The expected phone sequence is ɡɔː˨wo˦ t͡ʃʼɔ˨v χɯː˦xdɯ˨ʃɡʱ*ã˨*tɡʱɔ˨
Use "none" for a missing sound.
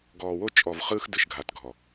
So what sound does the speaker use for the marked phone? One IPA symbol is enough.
a˨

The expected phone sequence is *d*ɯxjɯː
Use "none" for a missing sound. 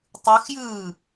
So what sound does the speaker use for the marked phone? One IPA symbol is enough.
tˤ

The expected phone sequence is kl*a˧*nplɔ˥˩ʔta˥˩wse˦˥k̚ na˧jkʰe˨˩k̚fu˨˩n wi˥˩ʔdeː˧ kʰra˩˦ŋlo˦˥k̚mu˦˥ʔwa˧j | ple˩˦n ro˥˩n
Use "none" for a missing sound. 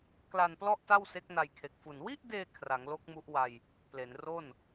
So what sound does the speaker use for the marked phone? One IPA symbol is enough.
a˧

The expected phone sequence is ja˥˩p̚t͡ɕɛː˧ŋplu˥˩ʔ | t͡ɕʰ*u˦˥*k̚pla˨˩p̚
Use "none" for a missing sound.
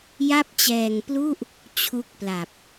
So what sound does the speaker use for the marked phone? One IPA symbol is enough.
u˦˥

